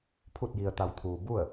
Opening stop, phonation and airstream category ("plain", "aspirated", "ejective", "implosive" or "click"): aspirated